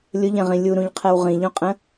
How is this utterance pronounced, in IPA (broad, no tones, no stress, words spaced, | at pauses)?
lʲʊʎɛ̃ʁĩ lʲuɾũʎqʰɛw ʁĩʎũqʼə̃